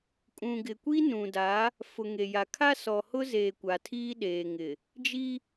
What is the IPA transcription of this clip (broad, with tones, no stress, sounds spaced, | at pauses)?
kʼ ũ˨ ɡ ɪ˨ kʷ i˦ n ũ˨ d a˨˦ | f ʊ˨ ŋ e˨ j a˨ kʰ a˦ s ɔ˨ h ʊ˦ z eː˨ kʷ a˨ tʰ iː˦ ɗ eː˨ ŋ ɪ˨ | d͡ʒ i˦